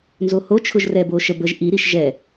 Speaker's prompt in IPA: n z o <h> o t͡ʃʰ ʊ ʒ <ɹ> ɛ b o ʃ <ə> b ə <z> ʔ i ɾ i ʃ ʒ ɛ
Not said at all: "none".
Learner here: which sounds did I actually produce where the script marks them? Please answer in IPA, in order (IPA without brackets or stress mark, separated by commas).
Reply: h, r, ə, ʒ